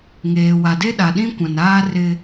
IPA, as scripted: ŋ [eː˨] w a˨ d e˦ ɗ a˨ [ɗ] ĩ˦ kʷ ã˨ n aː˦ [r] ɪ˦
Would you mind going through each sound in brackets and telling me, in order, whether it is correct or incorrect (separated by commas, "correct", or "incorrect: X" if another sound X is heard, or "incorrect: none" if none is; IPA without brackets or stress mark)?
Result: correct, correct, correct